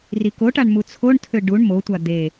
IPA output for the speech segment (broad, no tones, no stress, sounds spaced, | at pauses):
r i k o ʈ a ɳ m u t͡sʰ o ɳ tʰ ø ɖ u ɳ m o tʷ a d̪ e